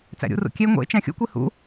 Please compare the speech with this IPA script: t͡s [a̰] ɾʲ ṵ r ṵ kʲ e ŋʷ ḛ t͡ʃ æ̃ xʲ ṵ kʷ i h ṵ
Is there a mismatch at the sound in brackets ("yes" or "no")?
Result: yes